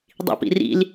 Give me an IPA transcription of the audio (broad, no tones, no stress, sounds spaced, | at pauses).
dˤ ḭ p ḭ r ḭ l